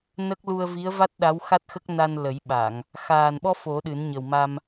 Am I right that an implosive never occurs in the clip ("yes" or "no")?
no